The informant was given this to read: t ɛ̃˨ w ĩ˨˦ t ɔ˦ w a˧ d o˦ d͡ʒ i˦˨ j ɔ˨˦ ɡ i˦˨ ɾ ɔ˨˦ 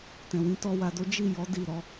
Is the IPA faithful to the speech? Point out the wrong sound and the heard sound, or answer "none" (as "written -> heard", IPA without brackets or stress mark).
ɡ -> d